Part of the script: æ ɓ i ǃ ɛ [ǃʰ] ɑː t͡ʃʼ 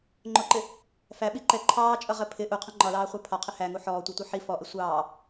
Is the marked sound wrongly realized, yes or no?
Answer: no